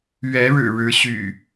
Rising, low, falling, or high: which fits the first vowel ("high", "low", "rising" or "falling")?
rising